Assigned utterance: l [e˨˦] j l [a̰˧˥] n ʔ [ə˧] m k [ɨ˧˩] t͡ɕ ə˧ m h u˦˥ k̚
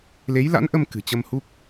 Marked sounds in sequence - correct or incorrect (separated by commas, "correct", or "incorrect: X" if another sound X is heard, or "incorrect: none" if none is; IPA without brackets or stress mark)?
correct, correct, correct, incorrect: ɨ̤˨˩